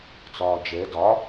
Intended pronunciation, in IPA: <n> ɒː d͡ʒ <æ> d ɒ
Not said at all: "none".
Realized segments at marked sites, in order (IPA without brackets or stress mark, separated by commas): t͡s, ɛ